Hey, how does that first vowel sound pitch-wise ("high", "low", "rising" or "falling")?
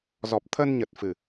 low